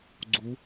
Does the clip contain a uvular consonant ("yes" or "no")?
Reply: no